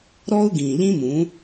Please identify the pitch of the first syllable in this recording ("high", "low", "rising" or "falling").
high